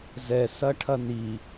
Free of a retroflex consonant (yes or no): no